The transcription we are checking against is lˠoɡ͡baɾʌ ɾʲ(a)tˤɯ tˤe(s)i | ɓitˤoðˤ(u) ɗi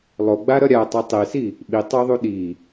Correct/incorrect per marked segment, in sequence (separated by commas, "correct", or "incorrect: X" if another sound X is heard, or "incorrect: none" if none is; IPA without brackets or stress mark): correct, correct, correct